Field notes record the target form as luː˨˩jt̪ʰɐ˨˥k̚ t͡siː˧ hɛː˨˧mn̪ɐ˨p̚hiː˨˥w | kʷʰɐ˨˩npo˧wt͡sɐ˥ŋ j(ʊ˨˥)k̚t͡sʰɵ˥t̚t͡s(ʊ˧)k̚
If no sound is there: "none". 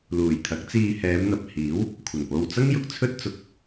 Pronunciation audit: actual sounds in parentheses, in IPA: ʊ˨, ʊ˨˥

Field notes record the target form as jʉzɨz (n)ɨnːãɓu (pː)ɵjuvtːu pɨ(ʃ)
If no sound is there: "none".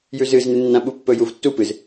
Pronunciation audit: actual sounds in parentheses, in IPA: n, pː, z

